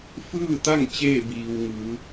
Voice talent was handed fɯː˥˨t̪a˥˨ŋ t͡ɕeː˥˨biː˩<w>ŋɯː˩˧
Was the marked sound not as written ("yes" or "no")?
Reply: no